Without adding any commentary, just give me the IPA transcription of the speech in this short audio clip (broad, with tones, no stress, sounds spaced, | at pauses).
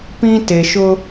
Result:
p ĩ˦ t e˨ ʃ ʊ˦